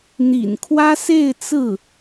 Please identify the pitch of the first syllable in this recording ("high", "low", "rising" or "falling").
low